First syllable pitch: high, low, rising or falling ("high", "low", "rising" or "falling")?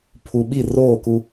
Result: low